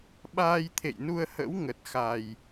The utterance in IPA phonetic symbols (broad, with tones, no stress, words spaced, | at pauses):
ɓaː˧jt̪ʰḛ˧˨jnu˧ə̯hə̰˧˥w ŋə˨˩t̚xa˨˩j